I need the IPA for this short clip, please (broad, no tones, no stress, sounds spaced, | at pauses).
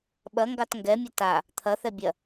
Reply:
ɓ ɐ ŋ ɡ ɑ t ŋ ɡ ɛ mʲ ə t a | t̪ʰ ɐ θ ɛ bʲ ɐ